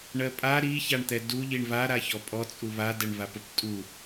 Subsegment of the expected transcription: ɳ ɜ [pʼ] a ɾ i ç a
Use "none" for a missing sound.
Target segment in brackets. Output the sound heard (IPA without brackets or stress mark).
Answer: pʼ